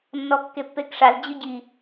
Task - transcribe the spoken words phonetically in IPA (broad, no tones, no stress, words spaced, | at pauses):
nːɔkːepːekʂaz d͡ʑʊɟi